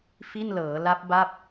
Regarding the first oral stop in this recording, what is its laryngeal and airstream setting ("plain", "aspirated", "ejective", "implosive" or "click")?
plain